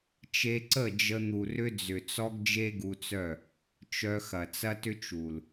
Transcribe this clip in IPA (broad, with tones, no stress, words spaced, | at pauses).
t͡ʃe˧ǀə˦˨d͡ʒə˧ n̪u˨rʏ˧d͡zʏ˨t͡sɔ˧ɡ d͡ʒe˦ɡu˧t͡sœ˦˨ | t͡ʃœ˧xɐ˨ t͡sɐ˦tʏ˦t͡ʃ u˨l